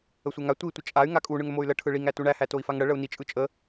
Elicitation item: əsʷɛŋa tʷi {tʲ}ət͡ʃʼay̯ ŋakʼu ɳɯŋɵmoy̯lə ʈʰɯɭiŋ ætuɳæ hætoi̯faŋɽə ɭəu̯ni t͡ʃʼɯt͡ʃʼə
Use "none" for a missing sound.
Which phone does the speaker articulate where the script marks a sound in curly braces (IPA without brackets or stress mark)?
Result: tʷ